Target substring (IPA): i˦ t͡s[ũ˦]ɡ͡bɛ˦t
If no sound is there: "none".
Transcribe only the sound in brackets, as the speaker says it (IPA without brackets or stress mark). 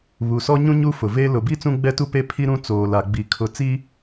ũ˦